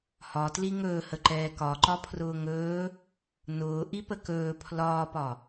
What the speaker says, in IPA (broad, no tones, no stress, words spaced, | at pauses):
hɒtli ŋɵːhə ǃɛːkɒǃɒ pʰrʊːŋɵː | nʊː ʔipəkɵː pʰlɒːpɒ